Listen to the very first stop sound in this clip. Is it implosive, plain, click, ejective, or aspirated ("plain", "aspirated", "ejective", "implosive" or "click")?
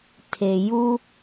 aspirated